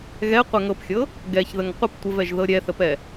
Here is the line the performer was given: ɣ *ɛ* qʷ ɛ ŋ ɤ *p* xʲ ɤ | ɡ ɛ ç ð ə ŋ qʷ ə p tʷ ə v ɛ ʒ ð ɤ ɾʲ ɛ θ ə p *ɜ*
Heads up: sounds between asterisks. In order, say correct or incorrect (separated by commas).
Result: correct, correct, incorrect